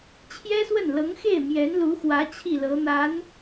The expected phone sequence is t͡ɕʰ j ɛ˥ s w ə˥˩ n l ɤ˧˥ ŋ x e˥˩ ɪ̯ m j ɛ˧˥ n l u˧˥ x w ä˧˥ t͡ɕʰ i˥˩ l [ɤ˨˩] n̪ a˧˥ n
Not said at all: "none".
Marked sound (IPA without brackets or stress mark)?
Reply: ɤ˧˥